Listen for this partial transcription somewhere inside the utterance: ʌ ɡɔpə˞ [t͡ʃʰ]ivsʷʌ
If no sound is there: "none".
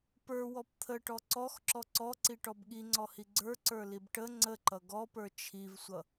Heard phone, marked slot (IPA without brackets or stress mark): t͡ʃʰ